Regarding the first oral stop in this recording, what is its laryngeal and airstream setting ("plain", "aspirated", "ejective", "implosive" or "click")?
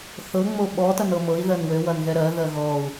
implosive